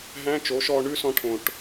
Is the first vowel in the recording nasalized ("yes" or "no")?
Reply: yes